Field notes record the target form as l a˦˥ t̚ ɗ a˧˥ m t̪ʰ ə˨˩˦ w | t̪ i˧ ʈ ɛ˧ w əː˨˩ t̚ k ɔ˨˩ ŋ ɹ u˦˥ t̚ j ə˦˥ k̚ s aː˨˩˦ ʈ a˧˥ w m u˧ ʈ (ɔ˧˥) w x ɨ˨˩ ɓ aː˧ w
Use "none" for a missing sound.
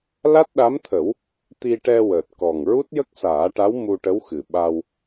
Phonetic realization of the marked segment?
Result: ə˧˥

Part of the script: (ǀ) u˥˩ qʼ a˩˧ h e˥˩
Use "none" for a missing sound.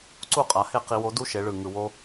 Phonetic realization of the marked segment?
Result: ǀ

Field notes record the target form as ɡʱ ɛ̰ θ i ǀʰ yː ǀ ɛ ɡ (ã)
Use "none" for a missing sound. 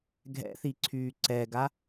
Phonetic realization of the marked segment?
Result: a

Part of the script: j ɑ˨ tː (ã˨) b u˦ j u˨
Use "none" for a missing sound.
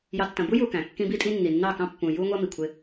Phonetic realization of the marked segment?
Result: ɐ̃˨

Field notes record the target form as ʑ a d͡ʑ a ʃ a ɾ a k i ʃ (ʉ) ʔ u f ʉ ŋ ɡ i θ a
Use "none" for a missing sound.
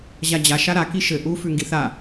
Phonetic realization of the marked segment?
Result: ɘ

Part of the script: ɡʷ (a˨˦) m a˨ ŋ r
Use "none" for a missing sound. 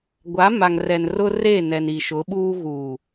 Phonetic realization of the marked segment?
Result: a˨˦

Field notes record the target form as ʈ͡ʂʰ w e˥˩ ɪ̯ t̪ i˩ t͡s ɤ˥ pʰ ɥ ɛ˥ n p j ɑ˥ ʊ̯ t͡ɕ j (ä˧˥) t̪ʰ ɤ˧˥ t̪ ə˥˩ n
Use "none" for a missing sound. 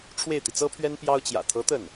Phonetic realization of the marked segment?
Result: ä̰˨˩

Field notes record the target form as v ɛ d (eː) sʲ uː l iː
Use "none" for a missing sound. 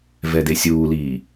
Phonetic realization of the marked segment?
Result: e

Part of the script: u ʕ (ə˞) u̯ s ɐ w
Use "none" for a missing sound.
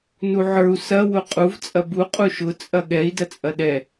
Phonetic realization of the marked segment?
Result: ə˞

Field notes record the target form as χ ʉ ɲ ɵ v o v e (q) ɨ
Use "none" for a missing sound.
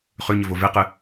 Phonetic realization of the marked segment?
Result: q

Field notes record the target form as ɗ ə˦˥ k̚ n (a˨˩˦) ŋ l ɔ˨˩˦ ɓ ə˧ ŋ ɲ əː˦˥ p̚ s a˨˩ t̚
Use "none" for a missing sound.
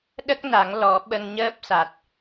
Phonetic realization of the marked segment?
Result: a˨˩˦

